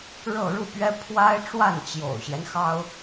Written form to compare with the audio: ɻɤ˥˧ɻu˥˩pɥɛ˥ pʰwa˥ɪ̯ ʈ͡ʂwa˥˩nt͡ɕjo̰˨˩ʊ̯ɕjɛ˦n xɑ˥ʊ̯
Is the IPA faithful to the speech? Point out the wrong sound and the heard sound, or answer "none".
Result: none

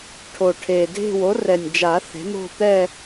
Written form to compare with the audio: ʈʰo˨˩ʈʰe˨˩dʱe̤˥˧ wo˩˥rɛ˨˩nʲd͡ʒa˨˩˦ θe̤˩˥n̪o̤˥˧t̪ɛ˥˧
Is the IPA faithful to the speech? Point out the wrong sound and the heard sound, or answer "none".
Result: none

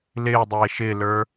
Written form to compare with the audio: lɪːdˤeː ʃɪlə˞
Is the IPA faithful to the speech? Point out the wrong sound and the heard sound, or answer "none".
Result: ɪ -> ɪː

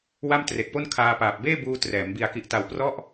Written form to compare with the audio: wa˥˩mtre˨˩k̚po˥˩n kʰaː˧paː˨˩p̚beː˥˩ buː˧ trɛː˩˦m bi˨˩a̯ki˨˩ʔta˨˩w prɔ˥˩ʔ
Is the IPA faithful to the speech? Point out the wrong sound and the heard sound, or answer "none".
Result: none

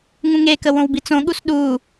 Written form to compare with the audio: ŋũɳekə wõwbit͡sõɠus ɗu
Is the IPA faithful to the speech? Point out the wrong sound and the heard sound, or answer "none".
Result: ɳ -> ŋ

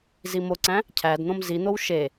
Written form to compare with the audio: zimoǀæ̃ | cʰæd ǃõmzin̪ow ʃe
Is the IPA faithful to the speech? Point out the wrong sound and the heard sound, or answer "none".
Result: ǃ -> n̪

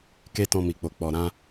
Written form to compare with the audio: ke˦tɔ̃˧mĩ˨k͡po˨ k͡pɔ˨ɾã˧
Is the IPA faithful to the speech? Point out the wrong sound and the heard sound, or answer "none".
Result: ĩ˨ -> i˨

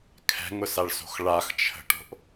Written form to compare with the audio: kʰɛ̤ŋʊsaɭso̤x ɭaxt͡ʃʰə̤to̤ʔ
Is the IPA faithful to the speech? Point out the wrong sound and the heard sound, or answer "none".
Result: t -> ʈ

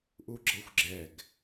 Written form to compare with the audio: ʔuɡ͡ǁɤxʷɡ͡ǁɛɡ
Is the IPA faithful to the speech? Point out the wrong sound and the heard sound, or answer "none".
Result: none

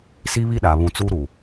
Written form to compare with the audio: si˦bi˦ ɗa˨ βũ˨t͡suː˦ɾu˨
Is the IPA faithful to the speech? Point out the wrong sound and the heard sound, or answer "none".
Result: b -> β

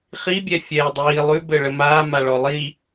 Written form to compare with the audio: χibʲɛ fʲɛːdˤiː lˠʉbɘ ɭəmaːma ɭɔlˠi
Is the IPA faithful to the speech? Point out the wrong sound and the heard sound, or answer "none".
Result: none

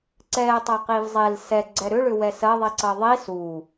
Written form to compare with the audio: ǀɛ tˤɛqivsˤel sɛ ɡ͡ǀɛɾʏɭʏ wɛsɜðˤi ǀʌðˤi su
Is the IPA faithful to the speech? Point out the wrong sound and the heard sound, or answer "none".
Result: sˤ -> zˤ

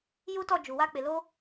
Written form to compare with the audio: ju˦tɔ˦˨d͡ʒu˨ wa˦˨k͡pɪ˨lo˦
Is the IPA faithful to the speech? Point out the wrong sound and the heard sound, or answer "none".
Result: none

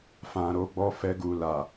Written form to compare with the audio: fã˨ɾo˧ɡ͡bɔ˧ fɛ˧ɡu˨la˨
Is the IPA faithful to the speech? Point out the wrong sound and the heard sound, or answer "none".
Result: none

